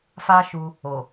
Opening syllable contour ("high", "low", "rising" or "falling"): high